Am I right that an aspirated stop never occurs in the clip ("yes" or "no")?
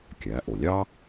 yes